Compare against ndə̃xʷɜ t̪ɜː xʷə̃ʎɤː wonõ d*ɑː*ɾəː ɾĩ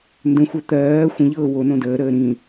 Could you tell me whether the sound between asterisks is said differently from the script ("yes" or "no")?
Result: yes